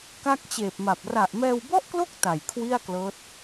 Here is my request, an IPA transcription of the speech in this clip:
k a˥˩ k̚ t͡ɕ eː˨˩ p̚ m a˨˩ p̚ r a˨˩ ʔ m ɛː˧ w b ɔ˥˩ ʔ k l o˥˩ k̚ t a˨˩ j kʰ w i˥˩ a̯ k l ɤː˦˥ t̚

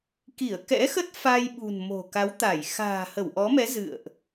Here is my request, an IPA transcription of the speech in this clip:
k i˧˩ ə̯ k ɛ̰˧˥ x ə˦˥ t̚ f a˧ j ɓ ṳ˨˩ n m o̤˨˩ k a˨˦ w t̪ a˧˩ j x a̤ː˨˩ h ə˧˩ w ʔ ɔ˨˦ m ɛ˨˦ z ɨ̰˧˨ ə̯ ʔ

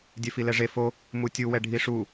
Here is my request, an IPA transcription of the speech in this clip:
dʲ ɛ f i l ɛ ʐ e f o | m u tʲ u w ɛ ɖʱ i ʂ u

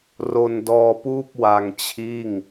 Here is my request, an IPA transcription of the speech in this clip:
r o˧ n d ɔː˧ p uː˥˩ p̚ w a˧ ŋ t͡ɕʰ iː˥˩ ŋ

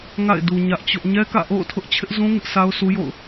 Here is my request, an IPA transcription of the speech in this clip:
ŋ a̰˦˨ ɪ̯ d u˨ ɲ ä˦ ʔ t͡ɕ ʊ˦ ʔ ɲ ɛ˦ k ä̰˦˨ ʔ o̰˦˨ ʊ̯ tʰ ʊ˦ ʔ t͡ɕʰ ɪ˦ ʔ z ũ˦ ŋ ɪ˦ ʔ sʰ a˦ ʊ̯ sʰ u˦ j o̰˦˨ ʊ̯

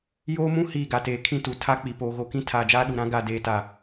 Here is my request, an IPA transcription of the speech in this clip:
j oː˦ m ũ˦ h iː˦˨ ɡ a˨ t eː˨ kʰ ĩ˦ t u˨ tʰ a˦ k͡p i˨ p oː˨ ɣ o˨ k ĩ˦ tʰ aː˨ d͡ʒ aː˦ ɗ u˨ ɾ ã˦ ɡ a˨ d eː˨ t a˨

